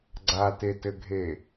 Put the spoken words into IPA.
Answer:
ɡ͡ǀatetɘɡʱe

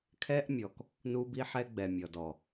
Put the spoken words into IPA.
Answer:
kʰɛ˦ʔmʲɔ˨k | nu˦bi˦ħɛ˦ ɡ͡bɛ˨mʲɔ˨dɔ˨

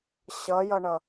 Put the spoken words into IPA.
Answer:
ɕʌjʌɳʌ

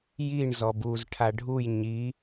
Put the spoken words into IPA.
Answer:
jiɳ zɔbuzʈʰa ɖʱuj ɲi

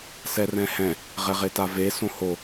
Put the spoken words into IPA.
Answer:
sɛrɛ̃hɛ̃ | ʁɛʁetave sõho

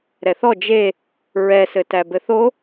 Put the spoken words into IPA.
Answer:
ɾɛθɔ d͡ʒe | ɹɛsɘtæ bɘθo

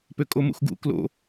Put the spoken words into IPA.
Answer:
pøkʼomṵxɡṵ klo̰

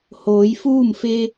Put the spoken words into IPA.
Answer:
hoː˩˧jfuː˥˨mfe˧

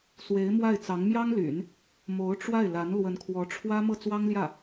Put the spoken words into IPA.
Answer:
swe˧˥ɪ̯mwa˥˩ɪ̯t͡sɑ˧˥ŋ mjɑ˥ŋly̰˨˩˦n | mo˧˥ʊ̯ʈ͡ʂwa˥˩ɪ̯la˧˥n lwə˧˥nkʰwɔ˧˥ʈ͡ʂʰwä˥ mɤ˥˩t͡swɑ˥ŋljä˥˩

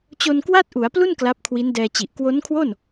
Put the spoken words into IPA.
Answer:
t͡ɕo˧nkwa˥˩t̚ʔu˩˦a̯plu˥˩n kla˦˥p̚kʰwi˦˥ndɛː˧t͡ɕi˨˩ʔ kwo˦˥nkʰwo˥˩n

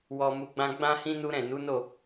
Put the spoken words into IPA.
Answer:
wɔ˨ mu˧ɡ͡bã˦ ɡ͡bã˦hĩ˦ nu˦ɾɛ̃˦˨ nu˨˦no˦˨

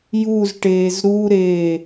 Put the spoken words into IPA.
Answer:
juzʈeːz ɾuɾeː

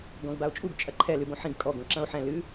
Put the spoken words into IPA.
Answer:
ɡɔ̃ɡbao̯t͡ʃʼuɡ t͡ʃʼɐǃʰɛ lɨbõħĩɡ kʼɔ ɡõǁɐ̃o̯ħɛ̃ lɨ

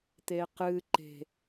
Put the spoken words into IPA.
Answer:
t̪eqɨ ǃe̤

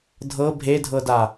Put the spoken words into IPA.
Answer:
dʱɤ bʱedʱɤda

